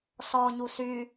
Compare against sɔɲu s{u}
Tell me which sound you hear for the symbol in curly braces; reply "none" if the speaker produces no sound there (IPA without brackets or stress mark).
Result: y